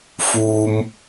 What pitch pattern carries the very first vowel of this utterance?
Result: low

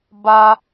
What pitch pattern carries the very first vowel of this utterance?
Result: high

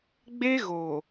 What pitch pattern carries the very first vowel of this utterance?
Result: high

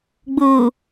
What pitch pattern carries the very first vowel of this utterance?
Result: low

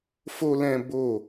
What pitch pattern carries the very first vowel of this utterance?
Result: high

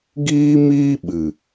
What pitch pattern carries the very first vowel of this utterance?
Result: high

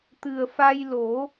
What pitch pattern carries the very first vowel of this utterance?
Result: low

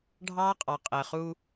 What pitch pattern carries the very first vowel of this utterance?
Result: high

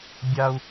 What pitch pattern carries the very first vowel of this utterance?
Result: high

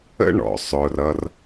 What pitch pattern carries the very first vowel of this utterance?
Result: high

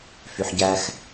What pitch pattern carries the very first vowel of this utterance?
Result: low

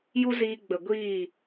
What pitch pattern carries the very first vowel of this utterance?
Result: high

